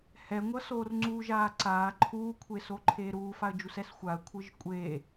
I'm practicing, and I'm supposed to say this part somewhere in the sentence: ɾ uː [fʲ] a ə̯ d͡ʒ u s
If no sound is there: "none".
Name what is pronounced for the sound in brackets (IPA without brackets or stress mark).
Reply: f